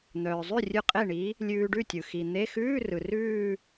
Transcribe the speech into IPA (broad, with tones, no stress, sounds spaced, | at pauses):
n̪ œː˩ zˤ ʉ˥˩ rʲ ʉ˧ qʼ e˥˩ ɳ i˨˥ | lʲ ʉː˧ ɖ ʉ˥˩ tʲ ɯ˩ x i˩ n̪ e˧˥˧ x ʉː˧˥˧ r ɯ˩ r ʉː˥˧